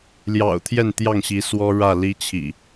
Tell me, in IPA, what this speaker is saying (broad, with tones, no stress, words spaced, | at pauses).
ljɑ̰˨˩ʊ̯t̪ʰjɛ˥˨nt̪jɑ˥˨ŋɕi˨˦ swɔ˦ɻä˥˨ li˦t͡ɕʰḭ˨˩